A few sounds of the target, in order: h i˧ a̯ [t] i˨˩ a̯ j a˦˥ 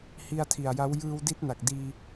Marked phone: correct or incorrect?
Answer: incorrect